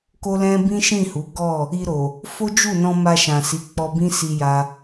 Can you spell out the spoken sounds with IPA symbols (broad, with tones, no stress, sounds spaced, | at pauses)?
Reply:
k o˦ l ɛ̃˦ b ĩ˦ ʃ ĩ˦˨ h u˨˦ ɡ ɔ˦˨ | i˧ ɾ o˨ | f o˦ d͡ʒ u˦˨ n ɔ̃˧ m a˧ ʃ ã˨ s i˨˦ k͡p ɔ˧ b ĩ˦ s i˧ j a˧